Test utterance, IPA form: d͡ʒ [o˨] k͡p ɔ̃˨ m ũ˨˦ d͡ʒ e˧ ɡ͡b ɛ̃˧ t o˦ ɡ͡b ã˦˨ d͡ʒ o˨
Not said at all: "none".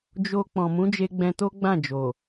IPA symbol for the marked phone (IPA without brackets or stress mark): o˧